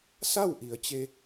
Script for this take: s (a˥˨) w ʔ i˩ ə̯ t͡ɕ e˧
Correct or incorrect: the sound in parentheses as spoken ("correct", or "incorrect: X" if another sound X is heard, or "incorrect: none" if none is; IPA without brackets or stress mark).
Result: correct